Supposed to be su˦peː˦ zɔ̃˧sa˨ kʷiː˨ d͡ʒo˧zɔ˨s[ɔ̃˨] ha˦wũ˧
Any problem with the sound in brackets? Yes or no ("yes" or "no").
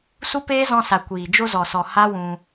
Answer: yes